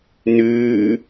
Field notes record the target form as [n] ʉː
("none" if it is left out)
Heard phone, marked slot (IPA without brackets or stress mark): n